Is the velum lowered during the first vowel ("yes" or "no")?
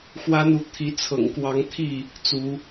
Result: no